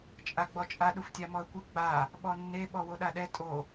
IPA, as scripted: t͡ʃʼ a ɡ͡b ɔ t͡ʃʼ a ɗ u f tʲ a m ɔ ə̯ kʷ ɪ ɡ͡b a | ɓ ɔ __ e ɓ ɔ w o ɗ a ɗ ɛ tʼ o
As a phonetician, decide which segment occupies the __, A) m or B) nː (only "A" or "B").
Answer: B